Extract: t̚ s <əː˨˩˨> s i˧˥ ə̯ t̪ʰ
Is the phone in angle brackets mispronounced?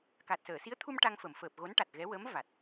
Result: no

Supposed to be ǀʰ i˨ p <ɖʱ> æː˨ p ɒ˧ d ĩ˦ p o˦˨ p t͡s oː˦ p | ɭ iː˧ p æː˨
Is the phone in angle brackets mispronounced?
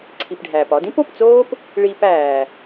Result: no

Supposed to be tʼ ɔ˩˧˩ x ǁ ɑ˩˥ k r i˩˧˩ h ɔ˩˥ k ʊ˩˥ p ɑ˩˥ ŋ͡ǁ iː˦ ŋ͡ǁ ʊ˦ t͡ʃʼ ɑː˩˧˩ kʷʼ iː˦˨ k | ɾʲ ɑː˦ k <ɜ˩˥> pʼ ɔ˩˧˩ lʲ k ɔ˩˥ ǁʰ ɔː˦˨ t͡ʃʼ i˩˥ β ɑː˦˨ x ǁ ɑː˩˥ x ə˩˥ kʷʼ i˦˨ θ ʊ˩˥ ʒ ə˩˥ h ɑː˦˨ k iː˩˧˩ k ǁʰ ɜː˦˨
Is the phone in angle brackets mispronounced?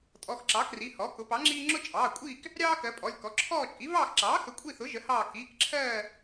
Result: no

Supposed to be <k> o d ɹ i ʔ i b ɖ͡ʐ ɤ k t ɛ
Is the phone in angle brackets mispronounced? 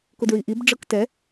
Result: no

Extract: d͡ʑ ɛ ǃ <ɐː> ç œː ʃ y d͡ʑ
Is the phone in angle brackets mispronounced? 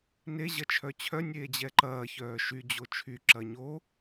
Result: no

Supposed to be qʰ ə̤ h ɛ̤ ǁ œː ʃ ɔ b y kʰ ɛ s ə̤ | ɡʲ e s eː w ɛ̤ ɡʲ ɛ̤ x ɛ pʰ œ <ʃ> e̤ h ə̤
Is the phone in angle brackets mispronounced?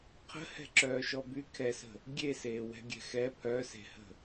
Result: yes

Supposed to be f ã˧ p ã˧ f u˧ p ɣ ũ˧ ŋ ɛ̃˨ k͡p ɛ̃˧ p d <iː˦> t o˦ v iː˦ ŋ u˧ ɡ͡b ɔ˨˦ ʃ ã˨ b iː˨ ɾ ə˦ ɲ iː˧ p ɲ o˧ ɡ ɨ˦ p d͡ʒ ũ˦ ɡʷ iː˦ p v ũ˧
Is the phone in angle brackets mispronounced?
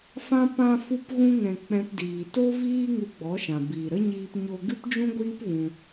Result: yes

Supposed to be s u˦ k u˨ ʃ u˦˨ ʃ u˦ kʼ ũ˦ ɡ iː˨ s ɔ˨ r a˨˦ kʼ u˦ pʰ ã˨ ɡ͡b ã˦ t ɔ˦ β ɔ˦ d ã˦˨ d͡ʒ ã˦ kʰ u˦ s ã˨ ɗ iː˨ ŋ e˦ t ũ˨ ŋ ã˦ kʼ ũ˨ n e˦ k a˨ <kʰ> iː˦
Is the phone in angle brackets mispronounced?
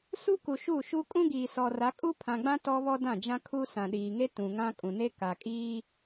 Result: yes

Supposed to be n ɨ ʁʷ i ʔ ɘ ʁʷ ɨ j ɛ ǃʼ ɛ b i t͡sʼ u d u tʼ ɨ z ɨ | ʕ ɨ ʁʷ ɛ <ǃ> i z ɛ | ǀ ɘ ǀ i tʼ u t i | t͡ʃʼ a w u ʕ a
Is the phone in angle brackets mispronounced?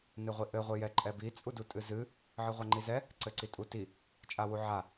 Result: yes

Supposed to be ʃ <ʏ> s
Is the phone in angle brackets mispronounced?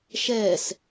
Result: yes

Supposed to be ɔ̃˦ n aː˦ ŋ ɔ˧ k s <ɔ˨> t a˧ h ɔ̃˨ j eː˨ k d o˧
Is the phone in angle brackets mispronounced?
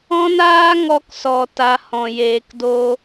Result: no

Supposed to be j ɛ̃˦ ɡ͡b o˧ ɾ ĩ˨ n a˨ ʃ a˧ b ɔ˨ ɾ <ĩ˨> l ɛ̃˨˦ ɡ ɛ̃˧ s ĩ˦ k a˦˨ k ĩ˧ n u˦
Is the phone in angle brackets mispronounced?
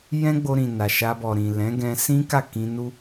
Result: no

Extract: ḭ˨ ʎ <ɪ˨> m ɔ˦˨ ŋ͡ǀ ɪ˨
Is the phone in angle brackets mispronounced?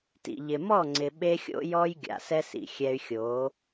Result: no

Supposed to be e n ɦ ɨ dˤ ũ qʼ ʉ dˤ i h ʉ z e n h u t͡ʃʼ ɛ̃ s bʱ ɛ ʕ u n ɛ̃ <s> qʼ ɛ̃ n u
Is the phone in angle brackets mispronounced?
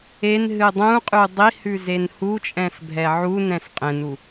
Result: no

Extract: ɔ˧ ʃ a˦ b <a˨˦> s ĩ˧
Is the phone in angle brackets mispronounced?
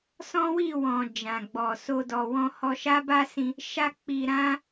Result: yes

